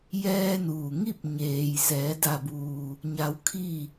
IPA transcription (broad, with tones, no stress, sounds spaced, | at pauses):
j ɛː˧ n uː˩ ŋ i˥˨ p̚ ɲ eː˩ j s ɛː˩˧ d a˧˩ b uː˩ | ɲ a˧ w kʰ i˥˨